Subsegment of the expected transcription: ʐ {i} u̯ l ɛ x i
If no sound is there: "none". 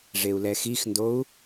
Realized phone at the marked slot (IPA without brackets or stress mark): e